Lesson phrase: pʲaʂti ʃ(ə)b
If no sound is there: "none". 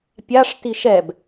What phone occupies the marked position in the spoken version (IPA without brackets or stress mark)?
ɛ